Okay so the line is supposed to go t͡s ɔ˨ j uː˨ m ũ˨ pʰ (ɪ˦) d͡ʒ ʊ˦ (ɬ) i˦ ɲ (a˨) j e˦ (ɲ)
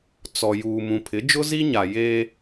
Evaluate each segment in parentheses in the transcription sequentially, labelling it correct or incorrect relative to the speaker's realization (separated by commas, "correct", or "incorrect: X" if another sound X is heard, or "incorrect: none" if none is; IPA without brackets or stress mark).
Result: incorrect: ɪ˨˦, incorrect: z, correct, incorrect: none